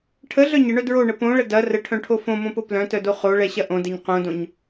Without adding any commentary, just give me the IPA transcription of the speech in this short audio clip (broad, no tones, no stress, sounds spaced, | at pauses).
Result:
ʈʰ ə ɮ œ ɲ ə ɳ œ d ɹ o ɳ ə p õ ɭ ə d ɐ r ə ʈʰ œ̃ ʈʰ o f õ m õ p o p l œ̃ t œ d o χ o ɭ ɛ ɕ ɐ ʔ õ d ɛ ɲ q õ d õ ɲ